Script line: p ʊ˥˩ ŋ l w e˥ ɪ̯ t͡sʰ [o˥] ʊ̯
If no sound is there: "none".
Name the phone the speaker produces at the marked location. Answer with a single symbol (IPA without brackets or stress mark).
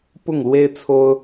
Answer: o˥